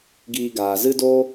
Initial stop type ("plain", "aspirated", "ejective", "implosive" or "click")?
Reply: plain